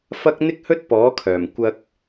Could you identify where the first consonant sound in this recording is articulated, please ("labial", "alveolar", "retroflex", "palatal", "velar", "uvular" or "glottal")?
labial